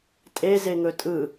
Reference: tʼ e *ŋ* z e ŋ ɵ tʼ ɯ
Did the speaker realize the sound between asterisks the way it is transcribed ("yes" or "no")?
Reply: no